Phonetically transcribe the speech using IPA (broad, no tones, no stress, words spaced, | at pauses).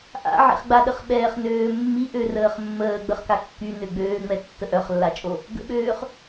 ʔa̰ʕḛχɡ͡baɗəχ ɓɛːχnøːmːi ʔørəːχmːəː ɡ͡bəχkakːy nøɡ͡bøːŋ͡mɛ tːəʔœχlːat͡ʃʼo | ɡə̰ɓøːχ